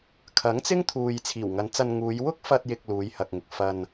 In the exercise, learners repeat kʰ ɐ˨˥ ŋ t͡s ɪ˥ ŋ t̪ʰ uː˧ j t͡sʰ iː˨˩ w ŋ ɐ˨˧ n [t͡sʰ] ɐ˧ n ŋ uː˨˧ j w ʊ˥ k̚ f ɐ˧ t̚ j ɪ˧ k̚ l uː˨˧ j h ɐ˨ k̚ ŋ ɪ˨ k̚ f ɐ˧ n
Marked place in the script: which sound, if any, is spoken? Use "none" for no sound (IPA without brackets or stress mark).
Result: t͡s